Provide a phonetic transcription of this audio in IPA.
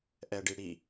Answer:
ʔ ɛ ɖ i ɽ i

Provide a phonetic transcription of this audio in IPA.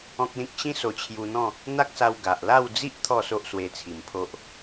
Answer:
ɔ̃˦ k̚ l ĩ˦ k̚ ɕ ĩ˦ s o˧ t͡ɕʰ j u˧ n̪ ɔ̃˥˧ | n̪ a˦ k̚ s a˧ w ɡ a˨ ʔ l a˥˧ w d͡z i˦ ʔ t̪ʰ ɔ˥˧ s o˦ ʔ s w e˧ t͡sʰ i˨˩ m pʰ o˦ ʔ

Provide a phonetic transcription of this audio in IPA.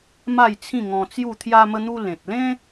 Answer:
m a˥˧ j t͡sʰ ĩ˥˧ ŋ ɔ̃˧ t͡s j u˥˧ t̪ʰ j a˧ m ə˧ n̪ u˧ l ẽ˨ t̚ l ẽ˦

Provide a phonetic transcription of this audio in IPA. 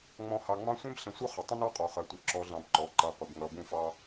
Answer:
ŋ͡m ɔ̃˨˦ h ɑ˨ ŋ͡m ɑ̃˦ sʷ ɛ̃˦ b ɬ ə̃˨ sʷ ʌ˦ χ ə˨ tˤ ə̃˦ n ɑ˦ qʼ ɔ˨ χ ɜ˨ tʷ ɜ˨ ǁ ɔ˨ ɮ ɑ̃˨ b ǃ ɔ˨ ǃ ʌ˨˦ qʷ ɪ˨ b ŋ ʌ˨ b ũ˦˨ f ɑ˦

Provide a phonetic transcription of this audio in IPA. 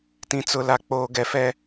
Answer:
t ĩ˦ t͡s ʊ˦ l a˦ k͡p oː˦ ɡ ɛ˦ f ɛ˦

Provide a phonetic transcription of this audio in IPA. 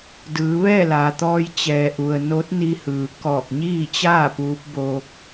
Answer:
d ɯː˩˧ ʋ ɛː˥˨ l aː˩ t̪ ɔː˧ j t͡ɕ ɛː˩ ʔ u˩ ə̯ n o˧˥ t̚ n i˧ h ɯː˩ k ɔː˧˩ k̚ ɲ iː˥˨ t͡ɕ aː˥˨ p uː˧˥ p̚ b oː˧ k̚

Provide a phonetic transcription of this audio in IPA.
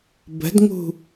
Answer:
b ə̤ d ŋ ṳ

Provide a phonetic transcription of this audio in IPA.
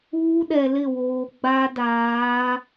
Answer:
uː˦ ɗ ɛ˨ l ɪ˦˨ w oː˨ ɡ͡b a˦ d aː˨˦

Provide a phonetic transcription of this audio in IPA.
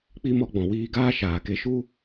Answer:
k͡p i˧ m ɔ˧ ɡ͡b ɔ̃˨ w iː˧ ɡ aː˦ ʃ aː˨ k e˧ ʃ u˦

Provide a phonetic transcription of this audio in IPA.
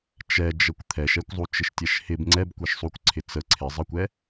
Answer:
t͡ʃ ɛ d͡ʒ ə kʷ t̪ʰ ɛ ʃ ɛ kʷ zˤ u t͡ʃ ɪ ʃ tʲ ɛ ʃ h ɪ b ŋ͡ǀ ɛ b kʷ ɛ ʃ sˤ u kʷ ǀʰ ɪ t͡s ə ǀʰ ɪ zˤ ə kʷ ɛ

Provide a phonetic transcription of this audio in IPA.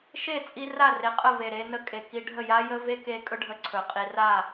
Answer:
ʃ e˦˨ t͡sʼ i˧ r a˦˨ r e˨ qʼ ə˦˨ v e˨ ɾ e˧ n ə˧ kʼ e˨ k i˧ ɖʱ ə˦˨ j a˦ j ə˦ v e˦ k e˧ kʼ ɵ˦ ɖʱ ə˧ ǀʰ ɵ˨ qʼ i˧ r a˦˨

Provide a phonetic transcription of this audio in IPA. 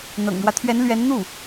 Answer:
n̪ ɤ̰˨˩ ŋ ɻ w ä˦ t̪ʰ ɥ ɛ˧˥ n l ɥ ɛ˧˥ n n̪ u˥˩

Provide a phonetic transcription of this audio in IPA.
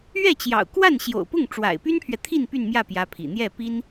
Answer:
ɥ ɛ˥˩ t͡ɕ j ɑ̰˨˩ ʊ̯ k w a˥˩ n ɕ j o̰˨˩ ʊ̯ p ʊ˥˩ ŋ ʈ͡ʂ w a̰˨˩ ɪ̯ p y˥ n pʰ ɥ ɛ˨ t̪ʰ i˥˧ n p y˥˧ n m j ä˥˩ p j ä˥ pʰ ḭ˨˩ n̪ j ɛ˥˩ p i˥ n

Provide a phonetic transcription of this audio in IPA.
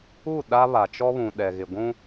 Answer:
u˦˨ ɗ a˦ β a˨ t͡ʃ ɔ˦ β ũ˨ ɗ ɛ˨ ɣ ɪ˨ ɡʷ ũ˦

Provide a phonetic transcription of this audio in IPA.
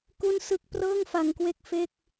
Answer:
k u˥˩ n s ɯ˥˩ k̚ p r ɤː˥˩ ŋ f a˧ ŋ k w e˥˩ k̚ f e˥˩ k̚

